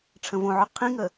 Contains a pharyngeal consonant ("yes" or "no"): yes